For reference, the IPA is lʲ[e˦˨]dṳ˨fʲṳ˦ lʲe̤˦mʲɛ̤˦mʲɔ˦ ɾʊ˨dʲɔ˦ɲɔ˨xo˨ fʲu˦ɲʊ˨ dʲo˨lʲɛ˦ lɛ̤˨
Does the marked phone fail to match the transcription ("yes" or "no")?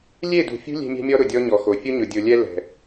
no